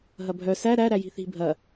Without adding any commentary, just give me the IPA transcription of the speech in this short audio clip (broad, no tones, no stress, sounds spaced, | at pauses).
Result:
ɦ ɐ bʱ œ s æ ɾ æ ɾ æ j i̤ θ i̤ bʱ ɐ